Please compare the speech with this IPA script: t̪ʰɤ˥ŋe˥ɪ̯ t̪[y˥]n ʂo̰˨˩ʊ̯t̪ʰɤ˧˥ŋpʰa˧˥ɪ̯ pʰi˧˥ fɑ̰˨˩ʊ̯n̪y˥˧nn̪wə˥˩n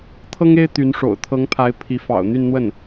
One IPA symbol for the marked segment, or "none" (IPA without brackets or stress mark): y˧˥